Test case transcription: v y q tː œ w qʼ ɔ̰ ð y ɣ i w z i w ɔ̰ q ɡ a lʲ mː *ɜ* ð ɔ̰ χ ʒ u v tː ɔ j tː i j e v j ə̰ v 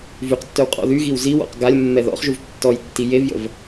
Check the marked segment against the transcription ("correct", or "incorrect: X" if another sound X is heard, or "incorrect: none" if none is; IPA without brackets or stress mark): incorrect: ɛ